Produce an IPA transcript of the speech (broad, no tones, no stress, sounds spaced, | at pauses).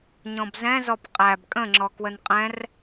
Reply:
ɲ ɔ̃ b z ɛ̃ z ɔ p qʼ æ b kʼ ə̃ ŋ͡ǁ ɔ k w ə n qʼ ɛ̃ r